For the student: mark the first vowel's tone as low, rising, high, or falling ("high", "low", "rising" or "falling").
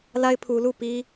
high